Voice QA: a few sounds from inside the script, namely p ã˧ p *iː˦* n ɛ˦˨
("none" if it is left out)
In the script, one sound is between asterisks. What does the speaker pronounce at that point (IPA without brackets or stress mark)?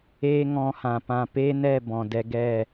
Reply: eː˦